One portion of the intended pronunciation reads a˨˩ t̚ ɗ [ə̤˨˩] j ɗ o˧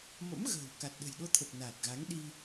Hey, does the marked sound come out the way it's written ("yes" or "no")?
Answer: yes